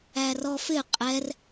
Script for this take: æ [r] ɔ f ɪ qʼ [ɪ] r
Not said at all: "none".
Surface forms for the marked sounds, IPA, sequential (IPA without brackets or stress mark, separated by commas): r, ɛ